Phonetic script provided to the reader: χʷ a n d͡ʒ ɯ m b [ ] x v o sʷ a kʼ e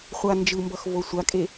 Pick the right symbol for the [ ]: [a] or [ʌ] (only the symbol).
ʌ